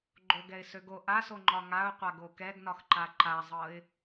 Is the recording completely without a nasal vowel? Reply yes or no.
yes